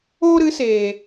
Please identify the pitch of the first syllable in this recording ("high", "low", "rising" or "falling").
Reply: high